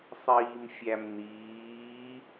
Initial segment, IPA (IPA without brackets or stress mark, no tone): sˤ